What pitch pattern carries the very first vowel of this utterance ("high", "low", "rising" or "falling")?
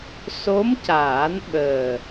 rising